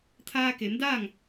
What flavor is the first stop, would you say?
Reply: aspirated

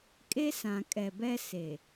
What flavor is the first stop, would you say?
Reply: ejective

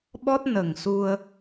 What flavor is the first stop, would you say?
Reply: implosive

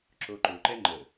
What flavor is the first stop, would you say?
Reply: click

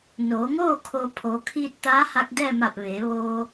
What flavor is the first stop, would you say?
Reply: aspirated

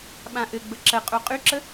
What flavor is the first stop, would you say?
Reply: implosive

